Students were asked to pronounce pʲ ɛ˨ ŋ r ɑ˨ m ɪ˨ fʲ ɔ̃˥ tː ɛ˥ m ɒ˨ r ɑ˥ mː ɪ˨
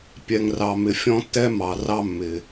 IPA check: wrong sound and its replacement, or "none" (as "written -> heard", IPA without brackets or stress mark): ɒ˨ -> ɑ˨